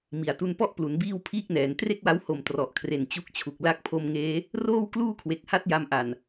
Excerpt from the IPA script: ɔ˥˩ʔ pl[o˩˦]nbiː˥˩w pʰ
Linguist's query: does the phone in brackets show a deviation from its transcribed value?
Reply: yes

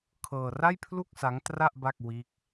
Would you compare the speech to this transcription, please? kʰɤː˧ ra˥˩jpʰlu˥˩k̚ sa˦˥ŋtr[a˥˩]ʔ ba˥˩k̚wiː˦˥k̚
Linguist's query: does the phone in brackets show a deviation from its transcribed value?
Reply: no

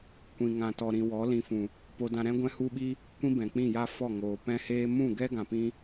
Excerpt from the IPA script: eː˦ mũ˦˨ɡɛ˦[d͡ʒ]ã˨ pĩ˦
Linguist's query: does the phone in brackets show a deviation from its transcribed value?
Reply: yes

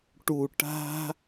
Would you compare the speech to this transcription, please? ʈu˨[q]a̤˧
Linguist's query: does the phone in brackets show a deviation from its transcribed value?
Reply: yes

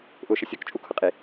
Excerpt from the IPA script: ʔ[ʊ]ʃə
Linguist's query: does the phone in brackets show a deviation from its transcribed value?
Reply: no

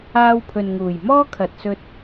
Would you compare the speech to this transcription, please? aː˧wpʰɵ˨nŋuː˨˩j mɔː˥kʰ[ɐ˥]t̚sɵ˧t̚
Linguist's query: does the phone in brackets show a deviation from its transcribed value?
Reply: yes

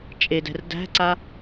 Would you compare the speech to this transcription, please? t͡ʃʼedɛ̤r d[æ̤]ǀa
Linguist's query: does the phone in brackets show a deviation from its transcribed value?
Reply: no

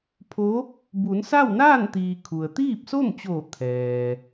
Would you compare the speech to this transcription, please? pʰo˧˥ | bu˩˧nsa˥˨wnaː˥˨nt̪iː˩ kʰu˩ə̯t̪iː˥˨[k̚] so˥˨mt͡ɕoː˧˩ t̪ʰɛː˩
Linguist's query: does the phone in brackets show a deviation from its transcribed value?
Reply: yes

